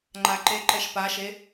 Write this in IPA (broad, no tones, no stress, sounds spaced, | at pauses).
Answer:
ŋ͡ǃ a ǃ e ǃ ɛ ʃ p a ʃ e